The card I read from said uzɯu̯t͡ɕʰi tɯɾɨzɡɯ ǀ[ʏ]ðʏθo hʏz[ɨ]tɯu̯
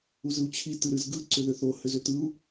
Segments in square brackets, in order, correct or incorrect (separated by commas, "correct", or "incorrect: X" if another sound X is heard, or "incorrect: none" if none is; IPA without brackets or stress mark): correct, incorrect: ʏ